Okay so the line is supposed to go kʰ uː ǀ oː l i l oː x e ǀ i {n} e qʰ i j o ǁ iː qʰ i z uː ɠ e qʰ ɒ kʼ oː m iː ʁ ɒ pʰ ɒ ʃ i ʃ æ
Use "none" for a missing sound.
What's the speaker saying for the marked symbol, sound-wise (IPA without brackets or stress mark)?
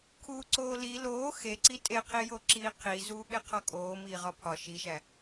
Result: tʼ